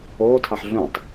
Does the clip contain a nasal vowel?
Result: yes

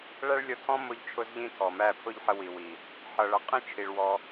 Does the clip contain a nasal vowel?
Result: yes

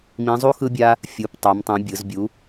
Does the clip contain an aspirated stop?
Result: no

